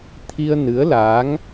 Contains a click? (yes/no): no